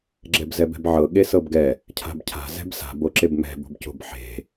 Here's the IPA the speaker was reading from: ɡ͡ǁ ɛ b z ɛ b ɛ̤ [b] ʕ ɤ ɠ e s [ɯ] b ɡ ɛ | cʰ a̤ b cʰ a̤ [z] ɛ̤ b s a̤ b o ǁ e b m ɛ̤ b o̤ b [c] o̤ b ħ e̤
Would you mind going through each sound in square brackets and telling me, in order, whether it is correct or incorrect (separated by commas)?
correct, incorrect, correct, correct